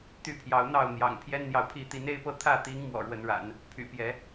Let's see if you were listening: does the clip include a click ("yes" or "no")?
no